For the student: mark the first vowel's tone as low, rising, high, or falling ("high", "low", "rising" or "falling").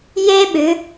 high